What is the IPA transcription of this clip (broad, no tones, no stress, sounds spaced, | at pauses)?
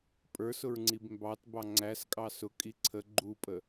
pʼ ə˞ s ʊ ɹ ŋ͡ǀ i b m b ɑ t b ɑ ŋ͡ǀ æ s kʼ ɑ s ʊ kʼ i ǀʰ ə ɡ͡ǃ u pʼ ə